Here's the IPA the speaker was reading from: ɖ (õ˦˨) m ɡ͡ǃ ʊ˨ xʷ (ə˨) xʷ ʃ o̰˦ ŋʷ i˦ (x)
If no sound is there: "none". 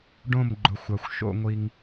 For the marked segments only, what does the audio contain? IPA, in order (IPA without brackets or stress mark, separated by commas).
õ˦˨, a˨, ŋ